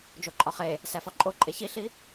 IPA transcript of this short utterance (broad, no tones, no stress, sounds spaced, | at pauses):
d͡ʒ o ǃʼ ɒ χ e | s æ f ɒ ǃʼ o ǃʼ e ç i ɬ i